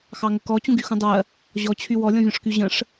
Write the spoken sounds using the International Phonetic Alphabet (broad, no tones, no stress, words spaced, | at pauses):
xɑŋəkɔ t͡ɕũɡyxũdˤɜ | ʑɔt͡ɕʰy wɔlʲɔ̃vʲɔ̃ʂky ʑə̃ʂ